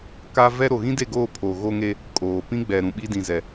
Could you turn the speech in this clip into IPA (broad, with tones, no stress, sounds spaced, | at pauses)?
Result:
k a˦ v ɛ˦ ɾ o˨ ɣ ĩ˦ d e˦˨ ɡ oː˦˨ pʰ o˨ ɣ o˦ ŋ e˦ | kʼ oː˨ p ĩ˦ ɡ͡b ɛ˨ ɾ ũ˨ ɓ i˦ d ĩ˨ z ɛ˨